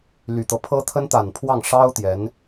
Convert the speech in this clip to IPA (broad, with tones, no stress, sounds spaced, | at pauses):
l y˨˩ t̪ ɤ˦ pʰ ɤ˥ t̪ʰ ə˥ n t̪ a˨˩ n pʰ w ɑ˥˩ ŋ ʂ ɑ˥ ʊ̯ t̪ j ɛ˧˥ n